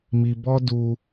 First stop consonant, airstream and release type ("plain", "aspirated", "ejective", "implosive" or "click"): plain